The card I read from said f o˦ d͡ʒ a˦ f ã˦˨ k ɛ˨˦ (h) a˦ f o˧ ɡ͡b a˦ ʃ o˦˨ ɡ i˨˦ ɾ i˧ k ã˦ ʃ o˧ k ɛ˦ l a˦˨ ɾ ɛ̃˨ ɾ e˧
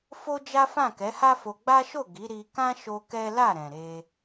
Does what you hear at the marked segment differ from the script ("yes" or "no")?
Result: no